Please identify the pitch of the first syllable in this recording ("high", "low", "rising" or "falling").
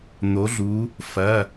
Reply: rising